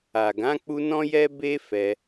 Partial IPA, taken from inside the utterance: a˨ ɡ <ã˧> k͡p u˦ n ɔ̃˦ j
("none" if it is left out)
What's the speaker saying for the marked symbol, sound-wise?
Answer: ã˨˦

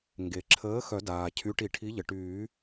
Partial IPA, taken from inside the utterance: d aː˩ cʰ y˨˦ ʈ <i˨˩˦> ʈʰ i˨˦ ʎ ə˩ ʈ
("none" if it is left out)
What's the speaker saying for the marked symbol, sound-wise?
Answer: i˨˩˦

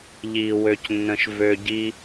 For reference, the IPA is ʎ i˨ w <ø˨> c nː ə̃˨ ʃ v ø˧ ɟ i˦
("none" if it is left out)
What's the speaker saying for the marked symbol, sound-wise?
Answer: ø˨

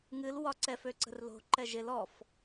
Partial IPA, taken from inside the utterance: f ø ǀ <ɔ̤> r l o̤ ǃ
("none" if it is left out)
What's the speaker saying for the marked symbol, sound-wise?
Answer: ə̤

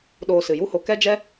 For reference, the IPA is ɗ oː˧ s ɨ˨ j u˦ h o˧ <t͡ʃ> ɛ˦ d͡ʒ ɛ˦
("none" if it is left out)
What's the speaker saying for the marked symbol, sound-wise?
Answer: k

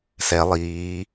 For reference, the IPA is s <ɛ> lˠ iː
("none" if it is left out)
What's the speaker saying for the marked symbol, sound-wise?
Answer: ɛ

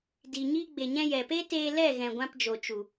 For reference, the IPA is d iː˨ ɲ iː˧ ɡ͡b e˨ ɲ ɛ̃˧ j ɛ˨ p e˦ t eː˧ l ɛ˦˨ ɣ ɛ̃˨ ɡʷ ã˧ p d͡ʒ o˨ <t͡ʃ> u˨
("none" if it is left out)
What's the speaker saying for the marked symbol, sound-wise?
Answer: t͡ʃ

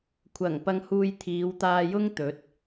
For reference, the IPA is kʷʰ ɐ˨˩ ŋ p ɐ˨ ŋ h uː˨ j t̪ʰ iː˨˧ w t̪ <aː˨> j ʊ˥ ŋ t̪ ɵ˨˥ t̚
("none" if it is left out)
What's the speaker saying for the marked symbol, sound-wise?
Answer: aː˧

